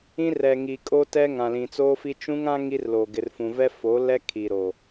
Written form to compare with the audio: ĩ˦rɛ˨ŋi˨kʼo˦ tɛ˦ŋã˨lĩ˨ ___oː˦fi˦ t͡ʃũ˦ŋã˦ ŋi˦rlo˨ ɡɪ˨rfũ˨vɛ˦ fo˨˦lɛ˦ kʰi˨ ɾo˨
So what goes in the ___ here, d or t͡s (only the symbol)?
t͡s